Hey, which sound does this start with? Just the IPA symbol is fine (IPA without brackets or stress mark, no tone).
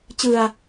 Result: t͡ɕ